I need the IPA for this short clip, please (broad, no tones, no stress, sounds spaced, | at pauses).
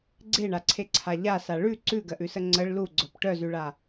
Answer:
ɡ͡ǀ e ɳ a ǀʰ e ǀʰ a ʎ a s a ɭ ʉ ǀ ʉ ɡ ɜ ʔ ʉ s ə ŋ͡ǀ ə ɭ l u ɡ͡ǀ œ p ʈ œ z ʉ ɭ a